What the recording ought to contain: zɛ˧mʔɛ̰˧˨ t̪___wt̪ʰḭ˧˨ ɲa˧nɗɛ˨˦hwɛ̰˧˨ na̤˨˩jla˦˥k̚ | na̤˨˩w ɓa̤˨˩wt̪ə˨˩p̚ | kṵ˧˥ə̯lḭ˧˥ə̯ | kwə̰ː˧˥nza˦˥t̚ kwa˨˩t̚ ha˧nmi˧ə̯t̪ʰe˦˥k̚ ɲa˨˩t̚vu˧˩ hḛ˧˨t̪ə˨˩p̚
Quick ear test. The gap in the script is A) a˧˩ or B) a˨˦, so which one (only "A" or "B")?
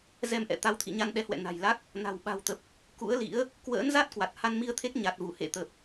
B